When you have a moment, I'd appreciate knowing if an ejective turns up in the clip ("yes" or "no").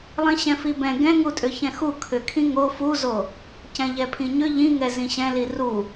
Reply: yes